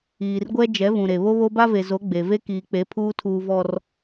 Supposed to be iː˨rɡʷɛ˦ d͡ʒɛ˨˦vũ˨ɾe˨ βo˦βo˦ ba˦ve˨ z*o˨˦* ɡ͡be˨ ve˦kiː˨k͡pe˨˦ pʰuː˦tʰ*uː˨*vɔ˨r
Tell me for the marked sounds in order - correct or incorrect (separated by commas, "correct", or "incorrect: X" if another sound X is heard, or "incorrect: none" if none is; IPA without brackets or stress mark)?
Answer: correct, correct